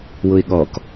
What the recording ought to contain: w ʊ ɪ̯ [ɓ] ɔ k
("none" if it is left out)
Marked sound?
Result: ɠ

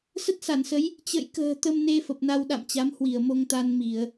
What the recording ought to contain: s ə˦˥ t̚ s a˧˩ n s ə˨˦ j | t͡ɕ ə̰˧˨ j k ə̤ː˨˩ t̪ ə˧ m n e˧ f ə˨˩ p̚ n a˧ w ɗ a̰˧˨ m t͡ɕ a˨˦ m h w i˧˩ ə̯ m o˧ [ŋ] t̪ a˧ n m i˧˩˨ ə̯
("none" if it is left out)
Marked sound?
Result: ŋ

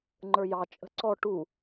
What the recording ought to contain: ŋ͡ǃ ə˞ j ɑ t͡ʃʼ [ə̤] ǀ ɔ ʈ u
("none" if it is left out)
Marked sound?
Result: ə̤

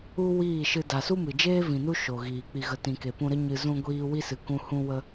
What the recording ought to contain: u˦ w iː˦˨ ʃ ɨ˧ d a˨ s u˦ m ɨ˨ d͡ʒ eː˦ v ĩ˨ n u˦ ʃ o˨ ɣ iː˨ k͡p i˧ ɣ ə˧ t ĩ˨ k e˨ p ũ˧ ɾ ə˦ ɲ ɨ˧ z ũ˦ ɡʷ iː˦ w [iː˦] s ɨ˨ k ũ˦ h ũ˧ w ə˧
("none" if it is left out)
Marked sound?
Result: i˦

